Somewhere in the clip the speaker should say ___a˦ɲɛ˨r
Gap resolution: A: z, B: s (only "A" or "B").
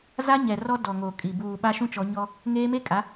A